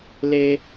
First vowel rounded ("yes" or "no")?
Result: no